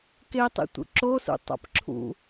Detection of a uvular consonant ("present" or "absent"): absent